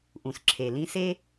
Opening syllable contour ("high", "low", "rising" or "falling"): low